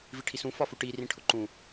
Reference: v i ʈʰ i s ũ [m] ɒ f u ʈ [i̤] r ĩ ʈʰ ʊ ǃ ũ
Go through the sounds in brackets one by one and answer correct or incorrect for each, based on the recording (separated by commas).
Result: incorrect, incorrect